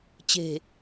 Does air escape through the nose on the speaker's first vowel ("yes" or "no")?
no